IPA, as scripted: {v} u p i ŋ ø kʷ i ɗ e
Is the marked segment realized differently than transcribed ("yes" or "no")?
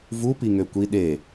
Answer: no